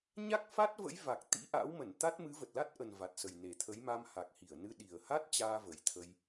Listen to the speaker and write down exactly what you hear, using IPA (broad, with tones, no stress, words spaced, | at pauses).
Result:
ɲa˦˥k̚fa˦˥t̚və̰˧˥j va˨˩k̚t̪ḭ˧˥ʔa̰˧˥w mə˧˩nt̪a˦˥t̚ mɨ˨˦və˨˩t̚la˦˥t̚ʔə˨˩n va˨˩t̚sə˨˩jne˨˩t̪ʰə˨˦j ma˧mha˨˩k̚hi˧˩ə̯nɨ˧ ɗi˨˩ə̯ha˦˥t̚t͡ɕaː˧ və˨˩jt̪ʰə˧j